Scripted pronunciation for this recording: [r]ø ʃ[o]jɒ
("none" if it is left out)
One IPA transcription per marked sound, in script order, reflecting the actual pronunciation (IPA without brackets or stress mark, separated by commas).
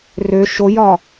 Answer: r, o